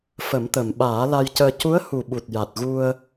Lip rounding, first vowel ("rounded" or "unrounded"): unrounded